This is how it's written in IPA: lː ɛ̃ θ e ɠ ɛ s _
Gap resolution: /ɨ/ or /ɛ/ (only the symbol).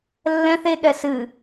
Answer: ɨ